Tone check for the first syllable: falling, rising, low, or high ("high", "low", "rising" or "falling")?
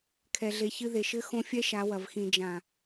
low